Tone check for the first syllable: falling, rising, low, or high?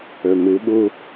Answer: low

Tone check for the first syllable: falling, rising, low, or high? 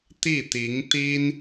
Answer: falling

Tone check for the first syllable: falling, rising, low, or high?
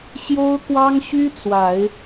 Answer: high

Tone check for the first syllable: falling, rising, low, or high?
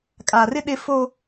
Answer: low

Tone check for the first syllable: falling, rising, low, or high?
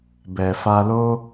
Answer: low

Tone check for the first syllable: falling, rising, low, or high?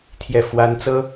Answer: falling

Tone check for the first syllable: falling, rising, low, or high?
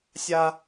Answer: high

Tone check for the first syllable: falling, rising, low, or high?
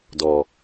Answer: low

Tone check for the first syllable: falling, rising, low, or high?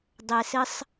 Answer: low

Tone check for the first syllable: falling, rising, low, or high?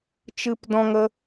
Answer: high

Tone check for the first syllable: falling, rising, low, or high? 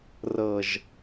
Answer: low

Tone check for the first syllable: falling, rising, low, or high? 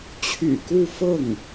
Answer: low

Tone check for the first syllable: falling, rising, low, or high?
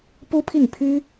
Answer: high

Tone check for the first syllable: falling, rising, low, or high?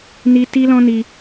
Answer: high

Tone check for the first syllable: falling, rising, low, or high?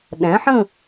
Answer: rising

